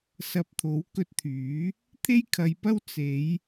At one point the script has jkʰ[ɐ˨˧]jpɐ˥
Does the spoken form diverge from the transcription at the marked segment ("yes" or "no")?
no